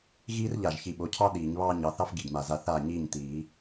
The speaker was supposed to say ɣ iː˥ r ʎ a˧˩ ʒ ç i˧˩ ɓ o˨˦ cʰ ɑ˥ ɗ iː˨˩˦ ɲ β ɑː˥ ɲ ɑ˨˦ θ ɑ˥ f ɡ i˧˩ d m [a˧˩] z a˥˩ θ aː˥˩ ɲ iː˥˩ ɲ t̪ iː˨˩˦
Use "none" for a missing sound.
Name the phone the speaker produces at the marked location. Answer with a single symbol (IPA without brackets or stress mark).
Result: a˧˩